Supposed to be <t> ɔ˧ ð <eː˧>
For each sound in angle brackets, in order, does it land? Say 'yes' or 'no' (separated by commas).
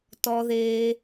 yes, yes